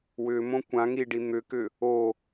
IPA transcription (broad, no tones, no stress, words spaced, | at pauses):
wʏmõ kʷãŋiɖi n̪ʏkʏ | o